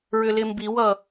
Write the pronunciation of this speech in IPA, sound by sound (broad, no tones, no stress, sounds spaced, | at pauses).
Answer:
ɹ ʏ l ɪ m b i w ʌ